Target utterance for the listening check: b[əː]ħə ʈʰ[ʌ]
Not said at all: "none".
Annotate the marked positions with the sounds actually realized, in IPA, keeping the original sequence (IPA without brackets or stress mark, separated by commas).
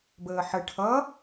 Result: əː, ʌ